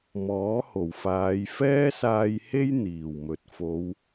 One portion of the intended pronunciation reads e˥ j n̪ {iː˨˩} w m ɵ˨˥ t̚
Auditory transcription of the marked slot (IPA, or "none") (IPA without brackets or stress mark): iː˨˩